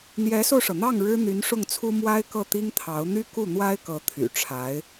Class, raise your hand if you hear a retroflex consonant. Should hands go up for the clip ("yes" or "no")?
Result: yes